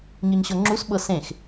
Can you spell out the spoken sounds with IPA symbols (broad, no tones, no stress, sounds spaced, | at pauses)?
ɲ ɯ ɲ ɕ ɤ ŋ͡ǁ u s ɓ ɤ s ẽ x